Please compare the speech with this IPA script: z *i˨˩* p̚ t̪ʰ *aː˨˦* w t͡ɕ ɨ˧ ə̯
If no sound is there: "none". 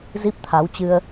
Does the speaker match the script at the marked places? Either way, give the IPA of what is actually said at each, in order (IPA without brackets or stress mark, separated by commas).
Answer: i˦˥, a˨˦